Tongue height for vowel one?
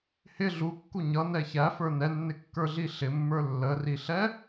high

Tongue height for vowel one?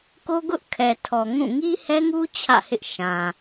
mid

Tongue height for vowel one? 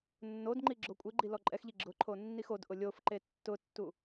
mid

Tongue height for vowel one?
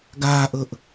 low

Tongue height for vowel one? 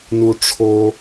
high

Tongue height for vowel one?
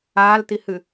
low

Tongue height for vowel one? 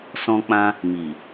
mid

